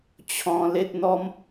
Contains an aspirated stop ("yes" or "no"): yes